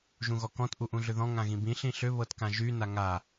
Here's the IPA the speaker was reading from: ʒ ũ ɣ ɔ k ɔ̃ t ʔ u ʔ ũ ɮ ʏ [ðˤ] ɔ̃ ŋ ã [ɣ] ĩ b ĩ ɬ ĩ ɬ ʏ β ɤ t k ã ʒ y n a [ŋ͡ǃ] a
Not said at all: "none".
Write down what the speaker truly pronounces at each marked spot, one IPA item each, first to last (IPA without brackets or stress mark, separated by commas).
ð, ɣ, ŋ